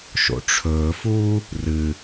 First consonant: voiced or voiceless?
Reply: voiceless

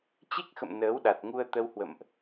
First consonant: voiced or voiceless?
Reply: voiceless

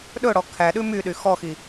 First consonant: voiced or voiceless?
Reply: voiced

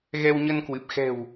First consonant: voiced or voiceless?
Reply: voiced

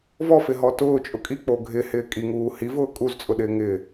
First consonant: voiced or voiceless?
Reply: voiced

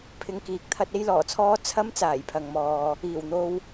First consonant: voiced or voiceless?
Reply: voiceless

